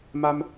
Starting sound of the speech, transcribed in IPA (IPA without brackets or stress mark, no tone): m